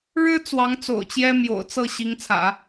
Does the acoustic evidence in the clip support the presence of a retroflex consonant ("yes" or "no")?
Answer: yes